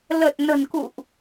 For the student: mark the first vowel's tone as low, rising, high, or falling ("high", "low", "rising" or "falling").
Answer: low